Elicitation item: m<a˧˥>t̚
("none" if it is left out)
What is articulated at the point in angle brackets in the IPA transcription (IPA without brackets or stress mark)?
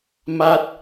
a˧